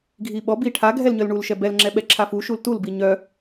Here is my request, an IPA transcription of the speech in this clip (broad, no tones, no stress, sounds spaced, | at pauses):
ɡʱ i ɓ ɔ b i ʈʰ a ɡʱ ɛ l ɲ œ l ɳ u l ʃ ɛ b ɛ l ŋ͡ǁ ɛ ɓ ɛ ǁʰ a f u ʃ u l t u l b i ɲ œ